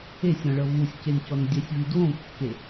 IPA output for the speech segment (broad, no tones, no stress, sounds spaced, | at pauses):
e sʲ ɾ ɔ̃ ɭ ɤ v u sʲ c e n c ɔ n dʲ ɛ sʲ v i d w õ kː e